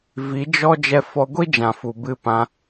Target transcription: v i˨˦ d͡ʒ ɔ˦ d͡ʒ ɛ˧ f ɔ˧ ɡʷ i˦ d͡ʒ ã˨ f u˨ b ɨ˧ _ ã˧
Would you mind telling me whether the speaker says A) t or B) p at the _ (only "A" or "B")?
B